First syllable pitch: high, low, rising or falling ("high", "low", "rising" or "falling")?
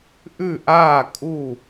falling